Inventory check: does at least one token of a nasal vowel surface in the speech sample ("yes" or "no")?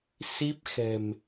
no